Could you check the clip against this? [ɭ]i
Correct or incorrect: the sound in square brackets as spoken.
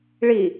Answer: correct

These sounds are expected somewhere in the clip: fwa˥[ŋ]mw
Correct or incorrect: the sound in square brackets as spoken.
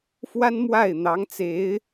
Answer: incorrect: n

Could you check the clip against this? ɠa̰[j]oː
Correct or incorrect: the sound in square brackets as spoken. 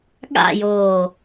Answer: correct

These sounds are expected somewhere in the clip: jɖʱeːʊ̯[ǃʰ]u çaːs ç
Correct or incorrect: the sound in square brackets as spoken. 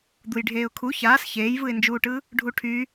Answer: incorrect: kʰ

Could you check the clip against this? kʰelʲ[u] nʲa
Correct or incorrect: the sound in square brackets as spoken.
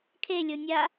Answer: incorrect: o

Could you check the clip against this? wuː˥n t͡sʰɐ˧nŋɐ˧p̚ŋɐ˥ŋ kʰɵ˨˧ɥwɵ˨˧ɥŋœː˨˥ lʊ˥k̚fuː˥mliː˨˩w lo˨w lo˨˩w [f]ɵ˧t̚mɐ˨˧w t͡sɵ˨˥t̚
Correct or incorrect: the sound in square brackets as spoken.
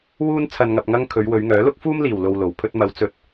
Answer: incorrect: pʰ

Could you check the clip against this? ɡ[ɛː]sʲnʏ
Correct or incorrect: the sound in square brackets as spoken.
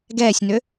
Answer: correct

